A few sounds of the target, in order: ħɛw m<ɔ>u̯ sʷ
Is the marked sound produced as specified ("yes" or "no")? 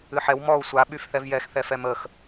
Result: yes